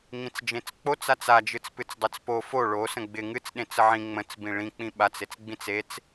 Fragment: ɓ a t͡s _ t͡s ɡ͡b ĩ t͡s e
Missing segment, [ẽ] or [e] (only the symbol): e